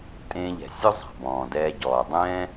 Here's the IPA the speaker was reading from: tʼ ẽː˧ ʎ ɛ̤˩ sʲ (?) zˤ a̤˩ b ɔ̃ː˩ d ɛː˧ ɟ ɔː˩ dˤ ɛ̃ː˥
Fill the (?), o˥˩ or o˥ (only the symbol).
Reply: o˥